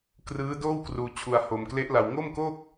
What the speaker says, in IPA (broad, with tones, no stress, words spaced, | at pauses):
krɯː˦˥ doː˥˩wkruː˧t͡ɕʰu˧a̯ ho˧mkle˦˥ʔla˧w ŋo˥˩mko˥˩k̚